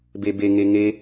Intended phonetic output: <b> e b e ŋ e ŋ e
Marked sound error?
no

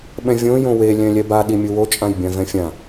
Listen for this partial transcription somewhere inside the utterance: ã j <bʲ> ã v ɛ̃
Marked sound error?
no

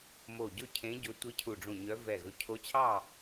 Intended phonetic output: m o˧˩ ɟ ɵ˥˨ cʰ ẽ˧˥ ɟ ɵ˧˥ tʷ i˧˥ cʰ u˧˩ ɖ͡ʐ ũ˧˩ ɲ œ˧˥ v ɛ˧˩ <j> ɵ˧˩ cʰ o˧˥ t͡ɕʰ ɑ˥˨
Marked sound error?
yes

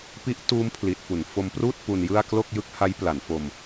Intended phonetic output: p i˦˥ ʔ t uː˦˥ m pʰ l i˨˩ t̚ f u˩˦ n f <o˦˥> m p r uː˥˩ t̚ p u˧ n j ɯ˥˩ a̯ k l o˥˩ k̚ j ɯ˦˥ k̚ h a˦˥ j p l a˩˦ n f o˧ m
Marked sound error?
yes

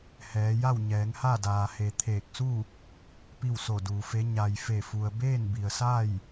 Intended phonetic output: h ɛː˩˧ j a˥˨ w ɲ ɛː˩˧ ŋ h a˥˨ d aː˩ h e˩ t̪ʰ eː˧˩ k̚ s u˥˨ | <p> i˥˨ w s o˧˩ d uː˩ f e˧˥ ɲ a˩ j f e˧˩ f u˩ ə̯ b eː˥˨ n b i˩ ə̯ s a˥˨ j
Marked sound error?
no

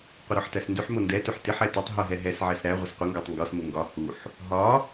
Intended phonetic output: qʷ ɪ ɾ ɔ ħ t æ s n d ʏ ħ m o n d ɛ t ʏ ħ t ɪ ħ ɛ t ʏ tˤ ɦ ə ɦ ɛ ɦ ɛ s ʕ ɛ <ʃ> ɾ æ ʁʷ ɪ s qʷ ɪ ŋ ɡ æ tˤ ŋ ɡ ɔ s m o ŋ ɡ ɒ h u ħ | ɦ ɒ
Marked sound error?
yes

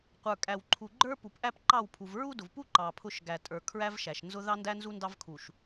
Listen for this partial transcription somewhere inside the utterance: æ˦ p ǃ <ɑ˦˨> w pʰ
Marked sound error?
no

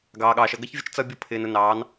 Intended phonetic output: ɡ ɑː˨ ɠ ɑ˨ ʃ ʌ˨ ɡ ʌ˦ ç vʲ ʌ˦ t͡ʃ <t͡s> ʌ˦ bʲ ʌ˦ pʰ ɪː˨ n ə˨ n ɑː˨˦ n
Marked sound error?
no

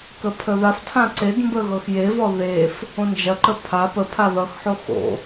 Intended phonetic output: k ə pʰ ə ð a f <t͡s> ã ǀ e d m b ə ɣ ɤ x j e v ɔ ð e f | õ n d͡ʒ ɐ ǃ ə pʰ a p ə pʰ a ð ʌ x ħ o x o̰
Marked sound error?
yes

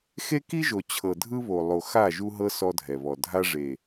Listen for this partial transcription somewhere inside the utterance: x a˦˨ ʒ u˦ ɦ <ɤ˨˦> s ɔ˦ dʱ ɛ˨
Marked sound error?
yes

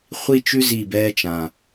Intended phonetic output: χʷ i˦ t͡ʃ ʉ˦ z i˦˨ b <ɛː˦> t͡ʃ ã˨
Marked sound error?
no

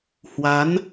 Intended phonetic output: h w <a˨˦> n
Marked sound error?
no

